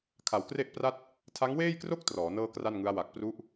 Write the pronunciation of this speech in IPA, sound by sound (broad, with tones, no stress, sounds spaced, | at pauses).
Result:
kʰ a˨˩ w k r e˥˩ ʔ p r a˥˩ t̚ | tʰ a˦˥ ŋ w eː˥˩ j k r o˥˩ k̚ t r ɔː˩˦ n ɤː˥˩ k r a˥˩ n ŋ ɯ˦˥ a̯ w a˨˩ k̚ p r u˦˥ ʔ